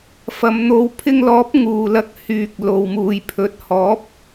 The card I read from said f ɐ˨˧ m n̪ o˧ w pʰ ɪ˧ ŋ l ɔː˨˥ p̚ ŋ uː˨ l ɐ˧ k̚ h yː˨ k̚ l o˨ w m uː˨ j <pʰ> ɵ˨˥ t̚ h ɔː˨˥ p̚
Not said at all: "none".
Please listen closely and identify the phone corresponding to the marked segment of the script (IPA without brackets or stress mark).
pʰ